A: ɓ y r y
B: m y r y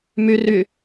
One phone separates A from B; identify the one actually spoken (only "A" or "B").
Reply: B